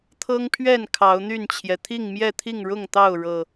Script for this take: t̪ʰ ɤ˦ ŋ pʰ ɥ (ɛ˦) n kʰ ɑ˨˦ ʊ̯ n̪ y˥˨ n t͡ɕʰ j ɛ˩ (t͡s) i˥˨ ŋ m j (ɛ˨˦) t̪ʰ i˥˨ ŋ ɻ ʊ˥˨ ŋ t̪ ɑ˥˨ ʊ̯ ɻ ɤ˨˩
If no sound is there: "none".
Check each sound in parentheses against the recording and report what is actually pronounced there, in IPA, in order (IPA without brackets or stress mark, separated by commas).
ɛ˥˨, t̪ʰ, ɛ˥˨